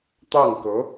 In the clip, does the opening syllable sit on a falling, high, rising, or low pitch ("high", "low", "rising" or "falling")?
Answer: falling